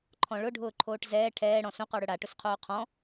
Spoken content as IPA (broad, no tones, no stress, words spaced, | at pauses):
ǃʰɔ̃ɭʊ ɖʱʊːǃʰoːʈzɛː ʈʰɛː ɽɔ̃sõq ɔɽʊɽa ʈʊsqʰoːqʰɔ̃